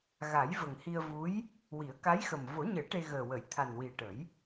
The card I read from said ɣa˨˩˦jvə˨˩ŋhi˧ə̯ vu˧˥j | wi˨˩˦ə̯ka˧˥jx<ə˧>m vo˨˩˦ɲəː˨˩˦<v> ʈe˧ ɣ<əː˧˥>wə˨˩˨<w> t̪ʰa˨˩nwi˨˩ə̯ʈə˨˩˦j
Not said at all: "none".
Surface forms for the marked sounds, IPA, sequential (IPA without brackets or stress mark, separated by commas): ə˨˩, none, əː˨˩, j